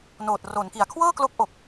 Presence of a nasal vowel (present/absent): absent